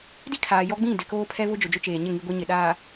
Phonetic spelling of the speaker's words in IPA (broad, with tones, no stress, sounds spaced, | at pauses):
d i˦ kʰ aː˨ j ɔ˦ ɡ͡b ĩ˦˨ d ɪ˨ k oː˦ pʰ ɛ˦ β ʊ˦ d͡ʒ ʊ˨ d͡ʒ ʊ˦ t͡ʃ eː˨ ɲ ɪ˦˨ ŋ i˦ ɡʷ i˦ ɲ ɪ˨ ɗ aː˨